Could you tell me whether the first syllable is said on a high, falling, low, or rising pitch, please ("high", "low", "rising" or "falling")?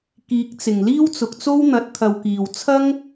rising